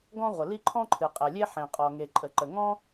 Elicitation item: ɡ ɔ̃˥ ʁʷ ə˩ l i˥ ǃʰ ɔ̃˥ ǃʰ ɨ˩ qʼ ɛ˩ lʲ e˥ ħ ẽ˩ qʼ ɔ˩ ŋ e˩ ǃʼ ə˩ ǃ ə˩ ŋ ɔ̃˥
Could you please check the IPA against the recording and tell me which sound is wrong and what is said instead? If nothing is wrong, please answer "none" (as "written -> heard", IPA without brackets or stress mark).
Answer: none